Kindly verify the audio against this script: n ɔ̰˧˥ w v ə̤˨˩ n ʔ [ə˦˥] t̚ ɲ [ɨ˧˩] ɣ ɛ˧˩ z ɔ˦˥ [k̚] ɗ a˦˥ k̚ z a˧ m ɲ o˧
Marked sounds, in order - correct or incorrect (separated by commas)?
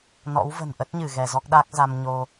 correct, correct, correct